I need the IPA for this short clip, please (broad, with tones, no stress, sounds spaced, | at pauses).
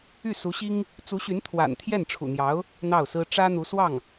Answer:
y˥˩ s u˧˥ ɕ i˥ ŋ | t͡s u˧˥ ɕ y˧˥ n t̪ʰ w a̰˨˩ n t̪ʰ j ɛ˥˩ n ʈ͡ʂʰ ṵ˨˩ n̪ j ɑ˧˥ ʊ̯ | n̪ ɑ˥˩ ʊ̯ s ɹ̩˥ ʈ͡ʂ ä˥ n̪ u˧˥ s w ɑ˥˩ ŋ